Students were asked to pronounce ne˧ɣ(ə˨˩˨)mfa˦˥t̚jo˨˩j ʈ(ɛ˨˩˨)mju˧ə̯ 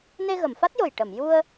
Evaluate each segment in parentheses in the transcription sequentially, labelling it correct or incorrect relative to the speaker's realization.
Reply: correct, incorrect: ə˨˩˨

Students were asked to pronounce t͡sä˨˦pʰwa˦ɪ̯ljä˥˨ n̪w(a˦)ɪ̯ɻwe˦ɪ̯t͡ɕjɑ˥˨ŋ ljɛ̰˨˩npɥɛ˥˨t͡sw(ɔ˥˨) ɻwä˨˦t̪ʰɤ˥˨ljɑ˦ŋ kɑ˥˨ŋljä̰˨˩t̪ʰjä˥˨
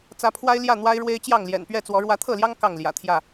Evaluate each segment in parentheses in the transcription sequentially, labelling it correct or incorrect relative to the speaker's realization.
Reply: correct, incorrect: ɔ˨˦

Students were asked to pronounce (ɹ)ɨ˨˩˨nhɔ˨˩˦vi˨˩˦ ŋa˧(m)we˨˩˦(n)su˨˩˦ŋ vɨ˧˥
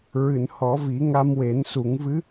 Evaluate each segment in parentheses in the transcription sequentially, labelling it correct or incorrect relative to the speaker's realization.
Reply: correct, correct, correct

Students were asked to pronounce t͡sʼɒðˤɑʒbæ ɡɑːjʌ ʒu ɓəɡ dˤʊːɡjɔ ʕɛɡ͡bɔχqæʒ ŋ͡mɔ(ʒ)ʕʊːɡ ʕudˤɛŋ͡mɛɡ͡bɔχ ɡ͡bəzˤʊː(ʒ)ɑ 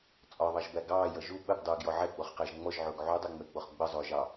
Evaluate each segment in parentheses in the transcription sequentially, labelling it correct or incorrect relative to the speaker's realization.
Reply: correct, correct

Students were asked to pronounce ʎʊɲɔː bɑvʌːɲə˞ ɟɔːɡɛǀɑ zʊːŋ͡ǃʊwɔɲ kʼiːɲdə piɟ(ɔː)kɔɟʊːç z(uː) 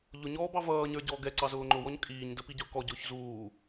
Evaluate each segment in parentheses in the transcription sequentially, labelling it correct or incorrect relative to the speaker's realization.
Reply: incorrect: ʊː, correct

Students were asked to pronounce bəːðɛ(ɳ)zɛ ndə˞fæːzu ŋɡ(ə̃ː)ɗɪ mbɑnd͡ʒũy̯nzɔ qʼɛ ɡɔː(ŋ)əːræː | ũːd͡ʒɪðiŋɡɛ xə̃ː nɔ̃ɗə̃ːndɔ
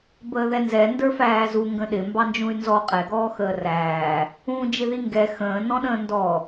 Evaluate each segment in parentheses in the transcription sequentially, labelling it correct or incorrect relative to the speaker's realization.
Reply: incorrect: n, incorrect: ə̃, incorrect: x

